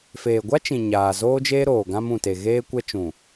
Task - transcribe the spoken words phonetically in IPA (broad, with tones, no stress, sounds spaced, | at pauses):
f eː˨ ɡʷ a˦ t͡ʃ ĩ˨ ɲ aː˨ z oː˦ d͡ʒ eː˦ ɾ oː˨ ɡ ã˦ m ũ˨ t e˨ ɣ eː˦ kʷ ɛ˦ t͡ʃ ũ˨